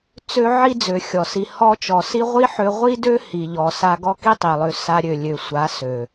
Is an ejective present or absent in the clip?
absent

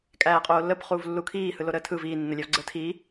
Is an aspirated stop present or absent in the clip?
present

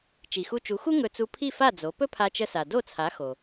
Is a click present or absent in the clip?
absent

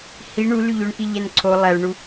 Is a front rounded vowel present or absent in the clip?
present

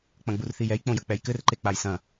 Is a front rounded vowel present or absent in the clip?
absent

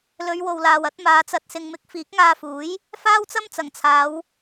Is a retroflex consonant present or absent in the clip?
absent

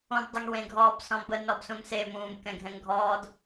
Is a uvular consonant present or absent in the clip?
absent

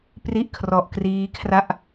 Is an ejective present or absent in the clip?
absent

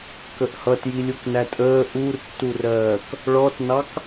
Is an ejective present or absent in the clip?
present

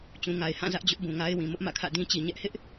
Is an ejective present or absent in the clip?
absent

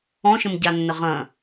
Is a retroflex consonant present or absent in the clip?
absent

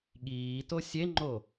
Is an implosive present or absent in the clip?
present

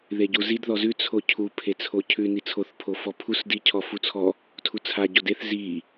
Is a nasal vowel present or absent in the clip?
absent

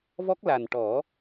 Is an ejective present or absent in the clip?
absent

